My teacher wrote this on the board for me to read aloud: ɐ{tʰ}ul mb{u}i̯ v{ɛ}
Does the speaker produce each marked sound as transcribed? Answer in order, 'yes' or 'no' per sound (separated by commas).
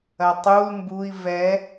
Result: no, yes, yes